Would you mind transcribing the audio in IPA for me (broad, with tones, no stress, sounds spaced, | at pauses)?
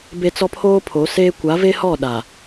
b e˨ t͡s ɔ˦ pʰ oː˦ pʰ o˨˦ s eː˦ kʷ a˨˦ v e˦ h ɔ˦˨ ɗ a˨